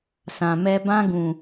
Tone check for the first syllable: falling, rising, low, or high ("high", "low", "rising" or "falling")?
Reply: low